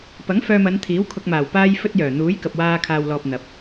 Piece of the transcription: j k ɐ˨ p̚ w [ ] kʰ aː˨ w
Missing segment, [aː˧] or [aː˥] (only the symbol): aː˧